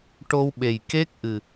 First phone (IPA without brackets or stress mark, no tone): ʈ